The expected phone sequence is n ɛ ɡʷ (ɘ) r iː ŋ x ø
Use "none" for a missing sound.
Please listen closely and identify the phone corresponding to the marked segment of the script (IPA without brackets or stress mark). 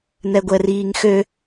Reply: ɛ